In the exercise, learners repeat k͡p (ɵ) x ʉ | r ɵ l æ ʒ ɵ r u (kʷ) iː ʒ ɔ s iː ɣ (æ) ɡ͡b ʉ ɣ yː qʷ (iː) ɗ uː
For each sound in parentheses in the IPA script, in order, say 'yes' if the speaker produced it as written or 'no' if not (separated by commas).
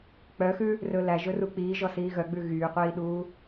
no, no, no, yes